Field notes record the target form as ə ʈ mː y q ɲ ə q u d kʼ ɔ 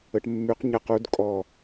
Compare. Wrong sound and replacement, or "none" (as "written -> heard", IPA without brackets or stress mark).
none